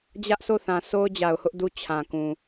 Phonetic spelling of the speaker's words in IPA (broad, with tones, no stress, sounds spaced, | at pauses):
d͡ʑ ä˦ ʔ sʰ o˦˨ θ ã˨ sʰ o˦ ʊ̯ d͡ʑ a˨ ʊ̯ h ʊ˦ ʔ d u˦˨ t͡ɕʰ ã˨ k ũ˨